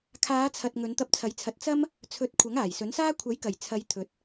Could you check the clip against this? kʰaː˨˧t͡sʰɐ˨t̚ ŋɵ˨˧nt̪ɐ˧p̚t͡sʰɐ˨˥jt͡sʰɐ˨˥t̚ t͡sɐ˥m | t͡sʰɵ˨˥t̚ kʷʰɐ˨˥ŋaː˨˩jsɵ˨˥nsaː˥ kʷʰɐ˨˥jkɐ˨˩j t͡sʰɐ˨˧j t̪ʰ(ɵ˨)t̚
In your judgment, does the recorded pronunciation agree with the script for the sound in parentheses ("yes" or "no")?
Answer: yes